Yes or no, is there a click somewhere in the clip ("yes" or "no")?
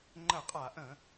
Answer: yes